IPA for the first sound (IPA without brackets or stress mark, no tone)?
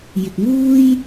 j